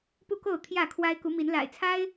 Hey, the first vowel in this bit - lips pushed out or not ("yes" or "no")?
yes